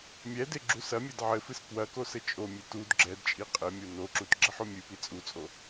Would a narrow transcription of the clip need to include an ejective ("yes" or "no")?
yes